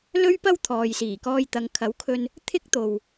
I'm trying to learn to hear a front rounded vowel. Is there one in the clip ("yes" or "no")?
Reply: no